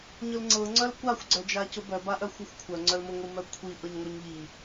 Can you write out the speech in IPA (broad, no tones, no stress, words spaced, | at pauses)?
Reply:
ɲʊlŋ͡ǀɤŋ͡ǀœl kʷaxʷɡ͡ǀœd͡ʒacʊ bœba ʔœxʷœxʷkʷʰœŋ͡ǀœl mʊŋʷimœ kʷʰi ʔɤɲŋʷœɲʎi